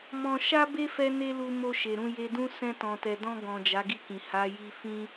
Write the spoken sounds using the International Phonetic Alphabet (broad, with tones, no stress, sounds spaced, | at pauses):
m ɔ̃˧ ʃ a˦ b e˦ f ɛ˦ n e˦ l u˧ m o˧ ʃ e˨ ɾ ũ˧ j e˧ d ũ˦ s ɛ̃˧ t ɔ̃˨ t ɛ˨ d ɔ̃˧ ɡ ɔ̃˨ d͡ʒ a˨˦ ɡ i˦˨ k ĩ˨ h a˨˦ j i˧ f ĩ˦